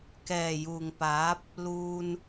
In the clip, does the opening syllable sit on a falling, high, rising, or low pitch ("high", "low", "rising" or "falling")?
low